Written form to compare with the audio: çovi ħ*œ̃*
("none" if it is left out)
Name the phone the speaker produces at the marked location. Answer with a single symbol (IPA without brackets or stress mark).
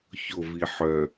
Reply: œ